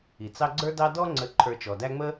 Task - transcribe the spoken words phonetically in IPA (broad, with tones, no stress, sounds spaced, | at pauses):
i˩ t͡s ɑ˦ ɡ͡ǀ ə˞˦ d ɑ˦ d ɔ˦ ŋ͡ǀ ə˨ ǃʰ ə˞˨ t͡ʃ ɔ˩ d æ˦ ŋ͡m ə˥